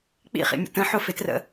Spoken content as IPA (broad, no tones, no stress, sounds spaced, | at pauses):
k͡p ḭ χ ḭ mʲ ə̰ t ə̃ ħ ʊ f ɪ t r ə̰